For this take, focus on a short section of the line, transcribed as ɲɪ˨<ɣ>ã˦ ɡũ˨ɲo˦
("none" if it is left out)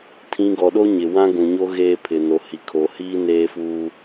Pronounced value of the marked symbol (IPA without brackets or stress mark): w